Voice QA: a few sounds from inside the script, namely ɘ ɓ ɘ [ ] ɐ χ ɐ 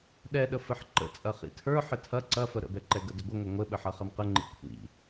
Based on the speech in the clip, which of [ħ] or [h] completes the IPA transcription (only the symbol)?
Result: ħ